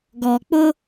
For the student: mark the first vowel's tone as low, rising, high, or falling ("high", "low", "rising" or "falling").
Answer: low